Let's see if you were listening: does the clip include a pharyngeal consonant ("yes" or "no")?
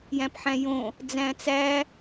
yes